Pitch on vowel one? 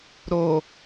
low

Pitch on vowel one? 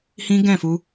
high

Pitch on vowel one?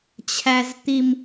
low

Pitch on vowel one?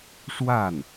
falling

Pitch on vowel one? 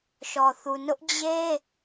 low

